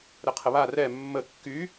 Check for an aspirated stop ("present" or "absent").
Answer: present